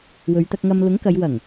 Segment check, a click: absent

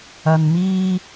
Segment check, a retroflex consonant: absent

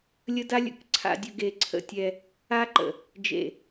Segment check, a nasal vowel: absent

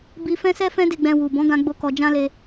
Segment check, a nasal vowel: present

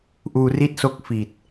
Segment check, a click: absent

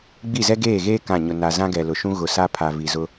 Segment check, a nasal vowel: present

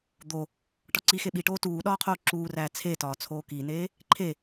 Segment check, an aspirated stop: present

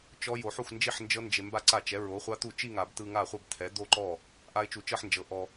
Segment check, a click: present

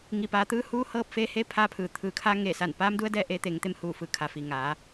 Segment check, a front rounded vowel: absent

